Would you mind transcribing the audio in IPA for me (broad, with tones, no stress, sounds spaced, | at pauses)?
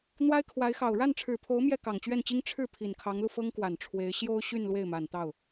n̪ w a˥ ɪ̯ kʰ w a˧˥ ɪ̯ x ɑ˨˩ ʊ̯ ɻ a˥˩ n ʈ͡ʂʰ ɻ̩˨˩ pʰ o˧˥ ʊ̯ m j ɛ˥˩ k ɑ˨˩ ŋ t͡ɕ ɥ ɛ˥˩ n t͡ɕ i˥ ŋ ʈ͡ʂʰ ɻ̩˥˩ pʰ i˨˩ n kʰ ɑ˧˥ ŋ l u˧ f ɤ˥ ŋ k w a˨˩ n ʈ͡ʂʰ w e˧˥ ɪ̯ ɕ j o˥ ʊ̯ ɕ y˥˧ n l w e˥˩ ɪ̯ m a˨˩ n t̪ ɑ˥˩ ʊ̯